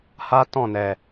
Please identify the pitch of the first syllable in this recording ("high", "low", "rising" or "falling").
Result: high